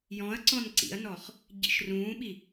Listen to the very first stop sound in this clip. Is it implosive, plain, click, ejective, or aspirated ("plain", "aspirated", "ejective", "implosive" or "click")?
click